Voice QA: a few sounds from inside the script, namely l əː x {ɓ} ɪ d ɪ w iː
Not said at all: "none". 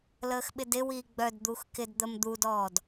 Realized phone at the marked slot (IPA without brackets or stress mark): ɓ